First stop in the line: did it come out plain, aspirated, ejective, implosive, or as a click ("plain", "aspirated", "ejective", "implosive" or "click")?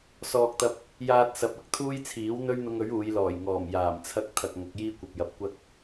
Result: plain